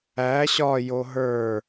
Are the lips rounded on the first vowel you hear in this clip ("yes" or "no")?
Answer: no